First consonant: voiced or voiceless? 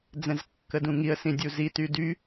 voiced